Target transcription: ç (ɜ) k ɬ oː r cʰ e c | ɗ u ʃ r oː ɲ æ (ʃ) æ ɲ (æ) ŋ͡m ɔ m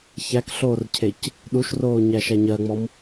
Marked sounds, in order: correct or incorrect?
incorrect, correct, incorrect

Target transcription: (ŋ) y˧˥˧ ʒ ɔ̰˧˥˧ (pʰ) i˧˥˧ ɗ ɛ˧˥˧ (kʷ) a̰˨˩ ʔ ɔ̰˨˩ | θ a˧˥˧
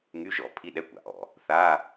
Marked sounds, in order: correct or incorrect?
correct, correct, correct

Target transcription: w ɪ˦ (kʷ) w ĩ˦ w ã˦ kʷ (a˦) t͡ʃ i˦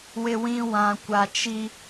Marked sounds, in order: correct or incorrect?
incorrect, correct

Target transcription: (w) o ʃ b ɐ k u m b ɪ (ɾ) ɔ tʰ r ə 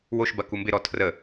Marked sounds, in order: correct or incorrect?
correct, correct

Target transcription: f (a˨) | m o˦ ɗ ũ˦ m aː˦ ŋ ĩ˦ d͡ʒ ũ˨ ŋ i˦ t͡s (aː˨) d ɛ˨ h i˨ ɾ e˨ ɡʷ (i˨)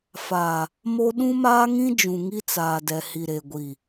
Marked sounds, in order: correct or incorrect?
correct, correct, correct

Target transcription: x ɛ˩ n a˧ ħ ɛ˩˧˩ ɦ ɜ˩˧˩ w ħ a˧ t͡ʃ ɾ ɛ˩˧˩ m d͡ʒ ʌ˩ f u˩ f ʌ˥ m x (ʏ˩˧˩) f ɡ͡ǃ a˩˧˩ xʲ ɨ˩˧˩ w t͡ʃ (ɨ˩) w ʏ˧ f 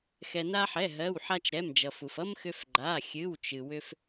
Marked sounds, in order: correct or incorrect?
incorrect, correct

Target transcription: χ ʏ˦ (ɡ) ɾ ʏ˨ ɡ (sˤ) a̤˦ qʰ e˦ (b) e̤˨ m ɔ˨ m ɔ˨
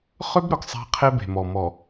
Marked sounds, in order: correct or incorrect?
incorrect, correct, correct

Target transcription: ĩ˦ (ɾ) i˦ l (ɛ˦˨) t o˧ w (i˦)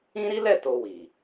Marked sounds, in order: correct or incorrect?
correct, correct, incorrect

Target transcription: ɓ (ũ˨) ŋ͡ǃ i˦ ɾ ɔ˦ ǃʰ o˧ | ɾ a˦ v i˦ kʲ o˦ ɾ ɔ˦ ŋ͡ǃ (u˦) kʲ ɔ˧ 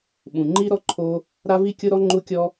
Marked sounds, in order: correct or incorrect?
correct, incorrect

